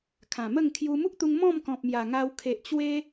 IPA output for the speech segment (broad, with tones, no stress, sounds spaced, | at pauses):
kʰ ã˨˩ m ə˥˧ ŋ kʰ j u˧ m u˦ k̚ t̪ u˧ ŋ m ɔ̃˥˧ m k ɔ̃˨ p̚ m j a˨˩ ŋ a˧ w kʰ e˨ ʔ t͡ɕ w e˧